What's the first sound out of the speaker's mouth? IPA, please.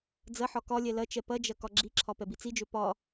d͡z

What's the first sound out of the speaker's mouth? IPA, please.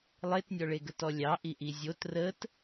lˠ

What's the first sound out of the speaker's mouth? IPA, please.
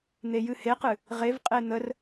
n̪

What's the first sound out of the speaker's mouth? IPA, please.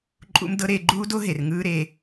ǃʼ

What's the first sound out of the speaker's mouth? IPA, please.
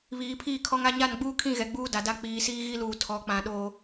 β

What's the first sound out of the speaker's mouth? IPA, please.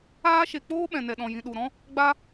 aː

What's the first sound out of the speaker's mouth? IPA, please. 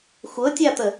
xʷ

